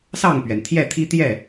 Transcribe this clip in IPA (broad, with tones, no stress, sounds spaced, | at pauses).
s ɑ˥˨ ŋ p ɥ ɛ˩ n t̪ʰ j ɛ˥˨ t̪ʰ i˦ t̪ j ɛ˥˨